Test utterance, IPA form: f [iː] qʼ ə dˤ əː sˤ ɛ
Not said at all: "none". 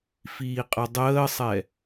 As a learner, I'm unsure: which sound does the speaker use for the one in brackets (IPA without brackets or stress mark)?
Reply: iː